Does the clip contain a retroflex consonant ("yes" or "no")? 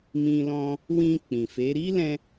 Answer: no